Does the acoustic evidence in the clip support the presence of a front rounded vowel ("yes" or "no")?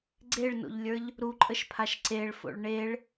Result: no